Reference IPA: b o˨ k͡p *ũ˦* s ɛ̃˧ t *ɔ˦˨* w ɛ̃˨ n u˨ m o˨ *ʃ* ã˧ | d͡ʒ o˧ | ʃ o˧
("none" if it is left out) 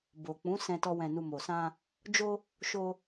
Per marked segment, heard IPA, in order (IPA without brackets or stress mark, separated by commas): ũ˨˦, ɔ˧, s